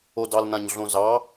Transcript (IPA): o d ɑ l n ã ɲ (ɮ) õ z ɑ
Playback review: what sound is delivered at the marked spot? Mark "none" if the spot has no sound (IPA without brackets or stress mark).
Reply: ɮ